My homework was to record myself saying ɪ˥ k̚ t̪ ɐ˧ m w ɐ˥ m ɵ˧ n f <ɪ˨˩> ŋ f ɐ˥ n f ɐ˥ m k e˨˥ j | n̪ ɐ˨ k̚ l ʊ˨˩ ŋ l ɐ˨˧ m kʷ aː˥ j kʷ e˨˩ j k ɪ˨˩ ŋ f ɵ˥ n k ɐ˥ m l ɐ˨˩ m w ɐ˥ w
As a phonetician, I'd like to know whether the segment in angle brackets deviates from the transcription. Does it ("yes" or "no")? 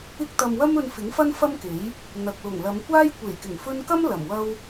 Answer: yes